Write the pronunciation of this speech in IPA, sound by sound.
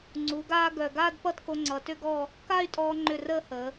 ŋ͡ǀ u˩˧ ɡ aː˧ ɡ œ˧˩ ɡ aː˥˧ d p ʌ˥˧ t k o˧ ŋ͡ǀ ʌ˩˧ t ʏ˥ ɡ ɔː˥˧ | k a˥˧ y̯ tʼ ɔː˧ ŋ͡ǃ ʏ˧˩ r əː˥ h əː˩˧

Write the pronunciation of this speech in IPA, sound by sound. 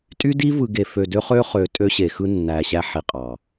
tʼ y˦ d i˦ v ɯ˨ ɡ e˨ f ø˨ d ø˦ χ ø˦ χ ø˨ tʼ ø˦ ɕ e˨ x ɯ˦ nː æ˨ ɕ æ˦ ħ i˨ qʼ ɑ˨

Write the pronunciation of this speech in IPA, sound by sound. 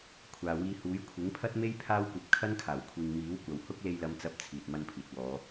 kʷʰ aː˨ w iː˧ h uː˨˥ j kʷʰ ɪ˨˥ ŋ pʰ ɐ˥ t̚ m e˥ j pʰ aː˥ w kʷ ɐ˧ p̚ kʰ ɐ˥ n kʰ aː˨˩ w kʷʰ iː˨ ŋ m iː˨˥ w kʷ ɐ˨ w h ʊ˥ k̚ l e˧ j l ɐ˨˧ m t͡s ɐ˨˥ p̚ t͡sʰ iː˨ t̚ m ɐ˧ n pʰ iː˨ t̚ w ɔː˨˧

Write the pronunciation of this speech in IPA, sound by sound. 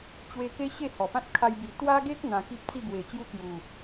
t͡ɕ w e˧ k e˦ ɕ e˥˧ h ɔ˨˩ p ã˦ t̚ kʰ a˧ j b i˨˩ t̪ w a˦ ɡ e˦ k̚ n̪ ã˧ k i˦ p̚ t͡s i˥˧ b w e˨˩ t͡ɕ j u˦ k j u˨˩

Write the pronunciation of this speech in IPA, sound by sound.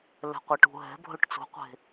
l ɛ̤ qʷ e ʈ ṳ ɦ ɛ̤ bʱ ɵ ʈ t͡s ṳ qʷ e̤

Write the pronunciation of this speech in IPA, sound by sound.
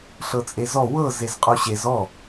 ɬ ɤ t͡sʼ e z ɔ w ɤ z e z qʼ o ɕ e z ɔ

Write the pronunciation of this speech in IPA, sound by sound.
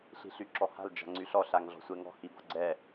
ɬ i̤ ɬ y ǁ ɔ h a̤ l d͡ʒ a̤ ŋ͡ǀ y ɬ ɔ ɬ a ŋ ɮ ɔ̤ sʷ ɛ ŋ ɔ̤ h i b ɔ̤ ɡ͡ǀ ɛ

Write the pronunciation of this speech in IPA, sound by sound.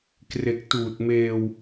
k r e˨˩ k̚ t uː˨˩ t̚ m eː˧ w

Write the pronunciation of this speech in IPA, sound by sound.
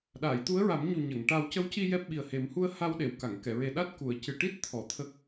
ɗ aː˨˩˨ j t̪ u˧˥ ə̯ ɹ a˨˩˦ m ɲ u˨˩ ɲ ə˨˩˨ ŋ ʈ a˧ w c ə˧˥ w c i˧ j ɛ˦˥ p̚ ɓ i˨˩ ə̯ h e˨˩˦ m h u˧ ə̯ h a˧ w ɗ e˨˩˨ w k a˨˩˨ ŋ k ɛ˨˩˨ ɹ e˨˩ ɗ a˦˥ t̚ k u˨˩˨ ə̯ c ɨ˨˩ ʈ i˦˥ t̚ t̪ʰ ɔ˨˩˨ t̪ʰ ə˦˥ k̚

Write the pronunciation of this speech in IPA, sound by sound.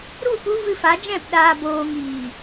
ɾ u˦˨ p u˧ v ɨ˧ f a˨˦ d͡ʒ ɛ̃˦˨ p ɗ aː˨ b oː˨ ŋ iː˨

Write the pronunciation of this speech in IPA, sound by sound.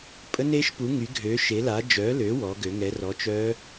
pʼ ə˧˥ n e˧˥ ʃ p u˩˥ ŋ y˩˥ ɡʱ ø˩˥ ʃ e˩˥ l a˩˥ d͡ʒ œ˩˥ l ø˩˥ w ɔ˩˥ ɡ ø˩˥ ŋ ɛ˩˥ r ɔ˩˥ t͡ʃ œ˧˥

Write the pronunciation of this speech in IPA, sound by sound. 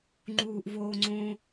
ŋ͡ǃ uː ʔ v oː ŋ͡ǀ õ

